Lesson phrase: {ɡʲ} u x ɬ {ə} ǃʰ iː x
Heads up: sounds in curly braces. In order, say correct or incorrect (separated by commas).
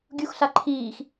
correct, incorrect